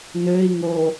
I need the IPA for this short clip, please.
n ø i̯ ŋ o

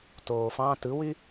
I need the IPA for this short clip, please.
t oː f ɑ̃ t ɯ w y

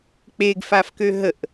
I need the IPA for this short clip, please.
k͡p e ɡ f a f k ø ɦ ə ʔ

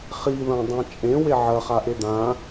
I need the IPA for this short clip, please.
χ i ð ɐ̃ dˤ ã t͡ʃʼ ẽ w e ʕ ɐ χ a ʔ e d̪ ã

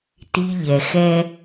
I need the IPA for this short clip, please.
t i˧ ʎ ɛ˨ x ɛ˦

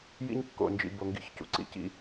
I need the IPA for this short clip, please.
j ḭ˦ ɲ kː o̰˨ n d͡ʒ ḭ˨ b o˨ ŋ ɡ ḭ˦ ç c ṵ˨ ǀ ḭ˦ c ḭ˦

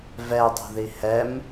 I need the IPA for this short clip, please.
v ɛ dˤ ṳ ð i h ɛ m

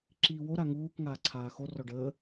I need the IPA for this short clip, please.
ǁ iː w o ɾ a ŋ uː k ŋ aː ǀʰ aː x o r ɔ ɖ əː

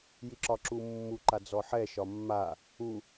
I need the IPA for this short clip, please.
j i ǁ ɒ ǁ u mː u ǃ a d͡z ɔ ħ ɛ ʃ ɒ mː a | u

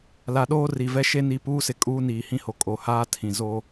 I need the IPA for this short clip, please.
l a˨ ɗ oː˦ r i˨ v ɛ˦ ʃ e˦ n i˨ p uː˦ s ɪ˨ kʼ uː˦ n iː˨ h ĩ˦ h o˨ kʼ o˨ h aː˦ tʰ ĩ˨ z o˦

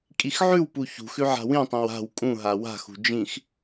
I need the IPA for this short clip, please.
kʼ i x ʕ ʉ w p u ç ṳ x ʉ ʕ a̤ w ĩ tˤ ĩ w a̤ w kʼ ũ ɦ a w a̤ x ṳ d͡ʒ ĩ x

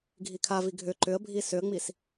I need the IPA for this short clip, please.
ɡʱ i kʰ a v i ɡʱ ʏ ǃ ʏ ə̯ bʱ i s ʏ ə̯ ŋ͡m i s

